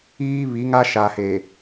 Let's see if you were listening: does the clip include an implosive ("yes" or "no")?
no